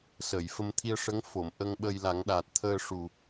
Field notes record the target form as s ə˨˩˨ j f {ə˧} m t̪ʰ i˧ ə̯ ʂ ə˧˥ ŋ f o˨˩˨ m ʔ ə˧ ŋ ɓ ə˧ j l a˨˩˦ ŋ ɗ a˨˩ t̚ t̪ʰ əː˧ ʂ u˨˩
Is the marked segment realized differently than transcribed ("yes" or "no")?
no